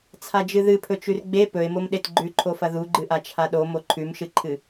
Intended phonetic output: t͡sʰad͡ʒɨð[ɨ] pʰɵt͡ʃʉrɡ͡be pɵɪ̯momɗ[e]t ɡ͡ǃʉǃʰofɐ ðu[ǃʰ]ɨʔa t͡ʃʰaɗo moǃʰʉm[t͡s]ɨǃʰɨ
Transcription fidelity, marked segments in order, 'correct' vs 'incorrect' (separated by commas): correct, correct, incorrect, incorrect